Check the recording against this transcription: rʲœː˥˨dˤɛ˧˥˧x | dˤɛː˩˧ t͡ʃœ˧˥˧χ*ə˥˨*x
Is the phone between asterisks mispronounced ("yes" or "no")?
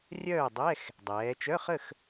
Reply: no